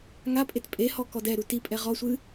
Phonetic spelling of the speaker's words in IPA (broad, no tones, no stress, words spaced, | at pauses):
ŋapʼet pʼehɔ kɔdɛ ɾutipʼɛ ʁɔsʷɨ